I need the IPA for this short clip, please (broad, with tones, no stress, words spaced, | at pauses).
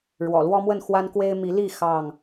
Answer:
ɻwɔ̰˨˩lwɔ˦ mwə˥˨nxwa˦nkwe˦ɪ̯ mi˨˦li˥˨ xɑ˥˨ŋ